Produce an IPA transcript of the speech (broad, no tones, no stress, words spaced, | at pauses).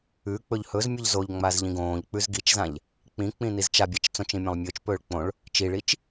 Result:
ʉ k͡pɵʎhɵzmʲɵʎ zoʎŋ͡maz ʎĩɡõːʎk͡pʉz ɡit͡ʃzãʎ | k͡pĩ k͡pĩnizt͡ʃabʲat͡ʃ t͡sõt͡ʃĩ mʲãlˠmʲɵːt͡ʃpɵːɭ k͡põɭ | t͡ʃiɭit͡ʃ